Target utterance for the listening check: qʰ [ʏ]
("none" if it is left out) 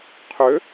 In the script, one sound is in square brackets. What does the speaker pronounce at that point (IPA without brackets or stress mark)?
ʏ